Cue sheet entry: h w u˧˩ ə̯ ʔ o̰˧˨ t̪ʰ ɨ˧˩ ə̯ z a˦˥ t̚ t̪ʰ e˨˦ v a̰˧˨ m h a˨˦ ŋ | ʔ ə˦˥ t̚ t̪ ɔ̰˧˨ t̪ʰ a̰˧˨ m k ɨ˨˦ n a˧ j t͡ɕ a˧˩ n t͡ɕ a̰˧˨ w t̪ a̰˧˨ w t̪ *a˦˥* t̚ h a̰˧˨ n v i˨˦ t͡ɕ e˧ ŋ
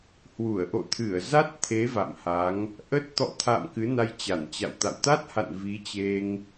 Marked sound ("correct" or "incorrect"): correct